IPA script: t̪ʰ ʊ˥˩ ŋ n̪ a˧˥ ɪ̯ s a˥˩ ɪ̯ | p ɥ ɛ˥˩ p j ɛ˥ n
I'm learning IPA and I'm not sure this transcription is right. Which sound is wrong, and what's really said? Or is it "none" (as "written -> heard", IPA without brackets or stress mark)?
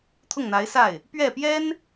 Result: none